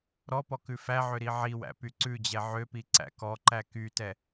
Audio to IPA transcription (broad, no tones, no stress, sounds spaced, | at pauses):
ɾ ɔ p ɔ k ʉ f æ ʕ ø ɾ i ʕ i w æ̰ p y ǀ ʉ d͡ʑ ɛ ʕ ø p i ǀ æ̰ k ɔ ǃ æ k y t ɛ